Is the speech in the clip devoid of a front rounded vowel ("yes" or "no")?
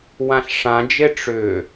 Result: no